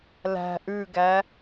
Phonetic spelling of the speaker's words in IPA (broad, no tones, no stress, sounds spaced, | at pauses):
l æ̤ ʔ ʉ ɡ æ